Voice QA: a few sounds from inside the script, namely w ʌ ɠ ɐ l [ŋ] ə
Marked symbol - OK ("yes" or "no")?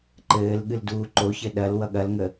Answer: yes